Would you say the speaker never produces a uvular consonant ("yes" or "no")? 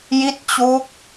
yes